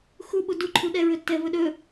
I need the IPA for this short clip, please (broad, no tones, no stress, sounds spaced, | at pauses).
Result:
x u ɓ u d u ǃʰ u ɗ ɛ ɹ ɵ tː ɛ v ɵ ɗ ɵ